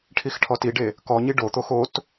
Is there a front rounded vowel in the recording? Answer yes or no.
no